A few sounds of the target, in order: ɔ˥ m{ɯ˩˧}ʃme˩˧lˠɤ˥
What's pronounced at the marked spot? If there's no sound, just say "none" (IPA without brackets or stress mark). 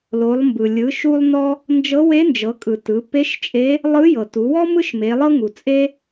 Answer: ɯ˥